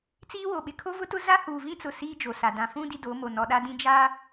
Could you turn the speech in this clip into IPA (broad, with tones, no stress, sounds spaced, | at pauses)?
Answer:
t͡s iː˦ w o˨ ɓ ɪ˨ kʰ o˦ v ʊ˦ t ʊ˦ z a˦ h uː˨ v ĩ˦ t͡s ʊ˨ s iː˦ d͡ʒ o˨ s a˨ d ã˨ f ũ˦ d i˦ d o˨˦ m o˨ n ɔ˨ ɗ a˦ d ĩ˦ d͡ʒ a˦